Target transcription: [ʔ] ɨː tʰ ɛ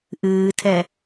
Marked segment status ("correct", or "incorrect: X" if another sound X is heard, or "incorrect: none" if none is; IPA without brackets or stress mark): correct